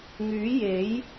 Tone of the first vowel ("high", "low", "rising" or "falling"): rising